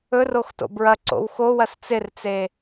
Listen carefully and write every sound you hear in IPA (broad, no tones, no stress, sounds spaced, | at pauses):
ɵ r o x t o̰ b ɹ ɐ ǀ o̰ w x o w ɐ s t͡s ɪ r t͡s e